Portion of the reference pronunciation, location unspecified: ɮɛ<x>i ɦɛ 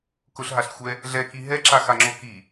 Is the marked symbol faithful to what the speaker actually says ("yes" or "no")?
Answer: no